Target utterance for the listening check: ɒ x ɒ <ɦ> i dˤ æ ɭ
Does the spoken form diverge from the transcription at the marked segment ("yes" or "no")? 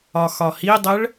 yes